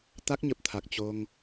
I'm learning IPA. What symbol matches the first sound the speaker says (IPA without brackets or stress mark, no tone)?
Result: t̪